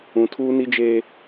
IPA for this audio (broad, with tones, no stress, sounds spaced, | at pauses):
ũ˨ tʰ uː˦ n i˦ d͡ʒ eː˦